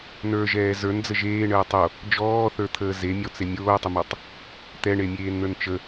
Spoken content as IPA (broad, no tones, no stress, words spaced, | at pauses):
nə˞ʒɛː zə˞nd͡zə ʒeːɳəː tˤo | d͡ʒɔːθə˞t̪ʰəː zemʲɔt͡se mʲoːtˤəmɔtˤ | t̪ɛɳemʲeːnn̪ə˞n t͡ʃə